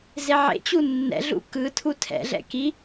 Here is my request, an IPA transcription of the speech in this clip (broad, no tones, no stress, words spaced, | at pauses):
zeʕḛt͡ɕu nːɛ̰ɮṵ kɯtʰu tʰɛ̰ɮɛ̰ ki